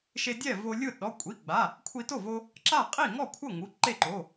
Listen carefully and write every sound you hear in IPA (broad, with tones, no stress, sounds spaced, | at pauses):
ʃ e˧ dʲ ɛ˥˩ v o˧ lʲ ɯ˥˩ ɗ ɔ˩˧˩ kʷʼ i˩˧˩ ɡ͡b a˩˧˩ | kʷʰ i˧ t o˥˩ v o˧ | ǁ a˥˩ qʼ i˥˩ ŋ ɔ˥˩ kʷʰ ɤ˥˩ ŋ u˩˧˩ ǃ e˥˩ ǃ o˩˧˩